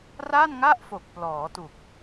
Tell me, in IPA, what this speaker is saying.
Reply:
ra˥˩nŋa˥˩ʔfo˨˩k̚ plɔː˩˦tu˨˩k̚

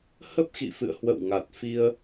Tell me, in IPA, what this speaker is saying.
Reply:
hə˦˥p̚xḭ˧˨fɨ̰˧˨ə̯ hwə̰˧˨wŋa˨˩t̚fi˧ə̯

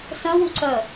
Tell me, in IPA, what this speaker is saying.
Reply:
sœ̃wuǀœ

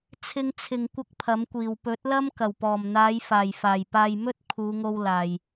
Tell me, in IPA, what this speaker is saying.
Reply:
t͡sʰɪ˧ŋt͡sʰɪ˨ŋ kʷɐ˥k̚pʰɐ˨˥mkʷiː˨˩w pɵ˨˥t̚lɐ˥m kɐ˨˩wpɔː˨˩mn̪aː˨˧j faː˨˩jfaː˨˩jpaː˨j mɵ˥t̚kʰuː˨˧ŋo˧w laː˨j

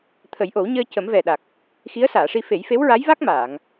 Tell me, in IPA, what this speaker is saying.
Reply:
t̪ʰə˨˩˦jʔo˨˩˦wɲəː˧ cə˨˩˦mvɛ˨˩ɗa˨˩k̚ | xi˧˥ə̯saː˨˩˨ʂi˧ fe˨˩˦jfe˧˥wɹa˧˥jva˦˥k̚ maː˨˩˨ŋ

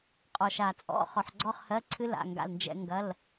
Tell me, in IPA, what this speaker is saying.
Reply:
qʼɔ˨ʃa˨t͡sʼɔ̰˧˥˧ χɔ˨ħɡ͡ǀɔ˥˧χhɜ˧˥˧ǀʰɨ˥ la̰˧˥˧ŋɡa̰˥˧lnd͡ʒɛ̰˥ ŋɡɐ˧˥˧l

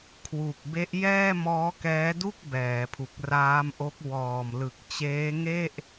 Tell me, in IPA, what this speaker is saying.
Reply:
kʰwu˨˩k̚ be˦˥ʔjɛː˥˩ mɔː˦˥kɛː˦˥du˥˩k̚ bɛː˩˦pʰu˨˩k̚ raː˦˥mʔo˦˥k̚ wɔː˨˩mlɯ˨˩k̚t͡ɕeː˦˥ ŋe˥˩ʔ

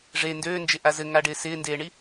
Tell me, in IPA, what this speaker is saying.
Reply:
ʐe ndøːnd͡ʒɪʔa zɘŋaɖɪː sɪːndeːɳi

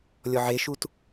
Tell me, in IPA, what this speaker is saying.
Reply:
lʲɔʕeʃut

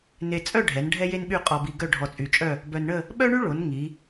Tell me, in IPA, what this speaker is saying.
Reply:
ne˧ t͡sʼœ˥˧ɖʱɛ˩˧n ɖʱɛ˥je˥nɓy˥˧ qʼɔ˧bi˧ ɡœ˥˧ɖʱɔ˧t͡sʼy˧˩t͡ʃʼœ˥˧ | bœ˧nɳə˥˧ | ɓœ˥ɳy˥ɭo˩˧n ŋi˩˧

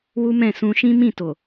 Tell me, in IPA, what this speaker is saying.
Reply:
wu˦mɛ̃˦˨ sũ˧ ʃĩ˦mĩ˦˨to˨

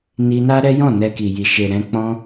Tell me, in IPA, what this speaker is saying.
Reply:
ni˧na˦ ɾɛ˦jɔ̃˦˨ nɛ˧ki˨ji˨ ʃe˨ ɾɛ̃˧k͡pɔ̃˦

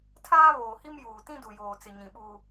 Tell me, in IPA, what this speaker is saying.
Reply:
tʰaː˦βoː˨hi˦m juː˨tĩ˦ du˨joː˨t͡sɪ˨ɲĩ˨ ɓuː˦

